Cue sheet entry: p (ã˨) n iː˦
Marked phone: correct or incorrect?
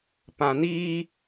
correct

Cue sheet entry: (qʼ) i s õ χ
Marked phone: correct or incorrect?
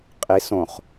correct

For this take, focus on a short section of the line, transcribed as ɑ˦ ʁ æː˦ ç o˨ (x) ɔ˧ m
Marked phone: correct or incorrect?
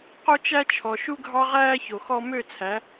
correct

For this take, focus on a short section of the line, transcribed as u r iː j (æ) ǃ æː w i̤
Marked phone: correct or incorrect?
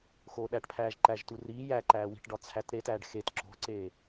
correct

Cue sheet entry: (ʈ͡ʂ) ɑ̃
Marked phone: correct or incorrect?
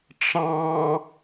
correct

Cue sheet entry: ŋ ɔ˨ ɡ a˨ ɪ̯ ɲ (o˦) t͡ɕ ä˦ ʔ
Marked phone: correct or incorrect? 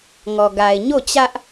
incorrect: o˦˨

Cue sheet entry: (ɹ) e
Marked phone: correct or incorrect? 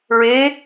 correct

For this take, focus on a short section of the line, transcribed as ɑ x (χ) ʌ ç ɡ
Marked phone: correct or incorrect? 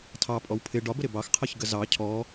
incorrect: qʰ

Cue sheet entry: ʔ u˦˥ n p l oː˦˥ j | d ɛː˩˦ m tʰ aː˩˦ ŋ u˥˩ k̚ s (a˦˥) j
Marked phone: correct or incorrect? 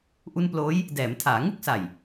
incorrect: a˨˩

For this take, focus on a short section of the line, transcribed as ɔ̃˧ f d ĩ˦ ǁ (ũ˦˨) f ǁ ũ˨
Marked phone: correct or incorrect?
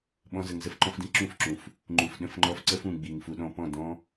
correct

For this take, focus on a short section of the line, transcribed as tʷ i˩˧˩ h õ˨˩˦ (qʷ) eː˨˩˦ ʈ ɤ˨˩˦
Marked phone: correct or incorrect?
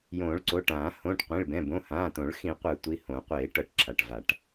correct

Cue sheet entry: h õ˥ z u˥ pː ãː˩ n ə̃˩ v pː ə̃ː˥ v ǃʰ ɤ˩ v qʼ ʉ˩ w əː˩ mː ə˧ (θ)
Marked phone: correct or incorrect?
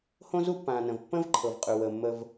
incorrect: v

